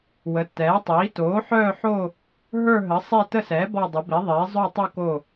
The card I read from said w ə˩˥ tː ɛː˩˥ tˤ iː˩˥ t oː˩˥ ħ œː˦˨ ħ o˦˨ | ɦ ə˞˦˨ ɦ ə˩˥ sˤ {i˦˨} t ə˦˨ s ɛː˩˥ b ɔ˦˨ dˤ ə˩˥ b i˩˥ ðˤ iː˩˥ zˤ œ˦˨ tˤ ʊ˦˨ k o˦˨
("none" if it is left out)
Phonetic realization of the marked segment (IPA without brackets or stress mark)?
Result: i˦˨